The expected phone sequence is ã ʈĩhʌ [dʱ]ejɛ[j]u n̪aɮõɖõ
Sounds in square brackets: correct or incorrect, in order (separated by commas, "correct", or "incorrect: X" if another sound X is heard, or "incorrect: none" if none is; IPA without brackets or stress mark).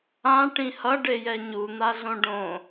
incorrect: ɖ, incorrect: ɲ